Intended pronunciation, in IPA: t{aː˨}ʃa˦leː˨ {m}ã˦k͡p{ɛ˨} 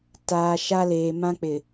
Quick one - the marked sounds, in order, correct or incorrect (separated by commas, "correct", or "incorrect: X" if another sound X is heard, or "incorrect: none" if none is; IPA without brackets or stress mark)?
correct, correct, incorrect: ɪ˨